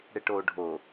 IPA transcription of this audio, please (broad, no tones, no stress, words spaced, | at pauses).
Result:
ɽeʈoːɖʱo